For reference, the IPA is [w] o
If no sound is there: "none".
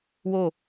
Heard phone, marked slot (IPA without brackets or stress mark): w